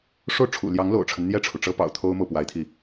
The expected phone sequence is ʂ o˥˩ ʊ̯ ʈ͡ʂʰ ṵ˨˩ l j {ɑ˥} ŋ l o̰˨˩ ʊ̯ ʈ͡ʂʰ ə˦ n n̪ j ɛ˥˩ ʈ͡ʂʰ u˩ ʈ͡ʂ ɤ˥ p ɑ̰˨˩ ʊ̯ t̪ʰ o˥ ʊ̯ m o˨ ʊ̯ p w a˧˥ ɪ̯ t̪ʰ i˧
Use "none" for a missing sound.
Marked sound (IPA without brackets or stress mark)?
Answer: ɑ˧˥